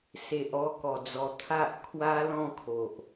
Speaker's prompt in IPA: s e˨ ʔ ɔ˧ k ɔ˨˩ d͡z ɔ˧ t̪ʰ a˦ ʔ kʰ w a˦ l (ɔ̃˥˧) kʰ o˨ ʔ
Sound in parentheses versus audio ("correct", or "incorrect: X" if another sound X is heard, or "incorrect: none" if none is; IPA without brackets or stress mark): correct